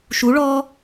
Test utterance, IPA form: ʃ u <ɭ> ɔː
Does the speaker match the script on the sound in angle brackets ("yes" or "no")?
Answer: yes